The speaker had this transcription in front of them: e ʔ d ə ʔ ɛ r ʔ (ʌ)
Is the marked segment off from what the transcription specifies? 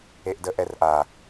yes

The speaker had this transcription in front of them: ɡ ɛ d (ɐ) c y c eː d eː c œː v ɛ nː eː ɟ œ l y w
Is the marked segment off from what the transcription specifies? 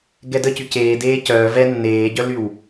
yes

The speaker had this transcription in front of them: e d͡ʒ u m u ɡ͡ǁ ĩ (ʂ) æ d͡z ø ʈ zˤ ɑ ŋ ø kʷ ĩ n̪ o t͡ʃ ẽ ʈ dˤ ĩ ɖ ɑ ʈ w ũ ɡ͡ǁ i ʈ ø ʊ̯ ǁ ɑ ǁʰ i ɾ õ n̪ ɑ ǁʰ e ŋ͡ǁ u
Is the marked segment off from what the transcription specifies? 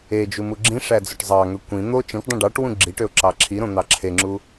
no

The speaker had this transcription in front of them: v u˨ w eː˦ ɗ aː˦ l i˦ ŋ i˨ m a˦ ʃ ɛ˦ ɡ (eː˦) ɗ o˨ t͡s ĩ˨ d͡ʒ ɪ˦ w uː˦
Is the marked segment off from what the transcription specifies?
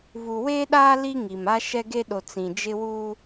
yes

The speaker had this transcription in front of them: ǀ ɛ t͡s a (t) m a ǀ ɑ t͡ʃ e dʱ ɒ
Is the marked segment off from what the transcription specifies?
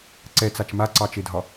yes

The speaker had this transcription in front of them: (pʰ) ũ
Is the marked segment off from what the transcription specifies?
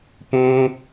yes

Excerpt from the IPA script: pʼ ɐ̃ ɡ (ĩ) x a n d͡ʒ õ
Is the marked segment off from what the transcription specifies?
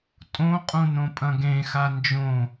yes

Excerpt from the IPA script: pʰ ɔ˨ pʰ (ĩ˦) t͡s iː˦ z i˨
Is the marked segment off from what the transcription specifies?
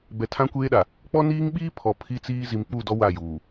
yes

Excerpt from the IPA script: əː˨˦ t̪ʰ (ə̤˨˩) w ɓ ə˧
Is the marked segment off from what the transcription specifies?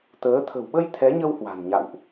no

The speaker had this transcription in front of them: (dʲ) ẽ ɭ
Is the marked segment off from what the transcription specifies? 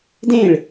yes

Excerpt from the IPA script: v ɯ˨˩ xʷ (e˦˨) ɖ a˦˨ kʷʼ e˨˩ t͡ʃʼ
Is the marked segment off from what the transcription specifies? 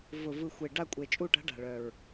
yes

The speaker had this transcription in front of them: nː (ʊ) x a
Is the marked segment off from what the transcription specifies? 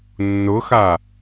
no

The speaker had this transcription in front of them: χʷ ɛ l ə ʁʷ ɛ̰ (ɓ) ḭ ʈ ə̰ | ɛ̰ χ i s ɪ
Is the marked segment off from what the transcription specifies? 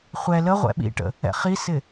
no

